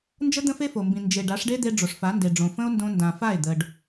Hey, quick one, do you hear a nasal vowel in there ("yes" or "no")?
yes